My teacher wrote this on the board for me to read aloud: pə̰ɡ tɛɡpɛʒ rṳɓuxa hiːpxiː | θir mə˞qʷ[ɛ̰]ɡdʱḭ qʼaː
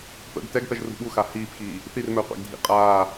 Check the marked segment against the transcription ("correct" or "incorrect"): correct